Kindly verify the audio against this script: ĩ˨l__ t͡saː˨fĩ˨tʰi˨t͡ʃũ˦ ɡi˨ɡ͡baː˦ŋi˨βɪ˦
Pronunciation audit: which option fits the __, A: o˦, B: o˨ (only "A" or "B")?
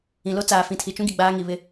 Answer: A